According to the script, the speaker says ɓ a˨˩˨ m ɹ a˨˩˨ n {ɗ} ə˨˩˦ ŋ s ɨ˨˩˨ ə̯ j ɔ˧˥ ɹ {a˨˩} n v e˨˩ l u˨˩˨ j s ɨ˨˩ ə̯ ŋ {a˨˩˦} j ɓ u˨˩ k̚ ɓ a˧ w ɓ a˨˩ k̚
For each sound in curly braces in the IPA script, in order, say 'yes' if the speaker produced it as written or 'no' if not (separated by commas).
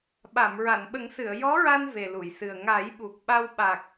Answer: no, no, yes